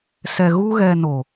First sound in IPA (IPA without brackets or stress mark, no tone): s